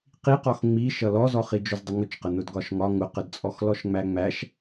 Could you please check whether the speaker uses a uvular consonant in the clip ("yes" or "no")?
yes